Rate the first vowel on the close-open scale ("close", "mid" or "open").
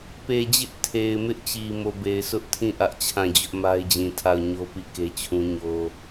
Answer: mid